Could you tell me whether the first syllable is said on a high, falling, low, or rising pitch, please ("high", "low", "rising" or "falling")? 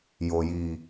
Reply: low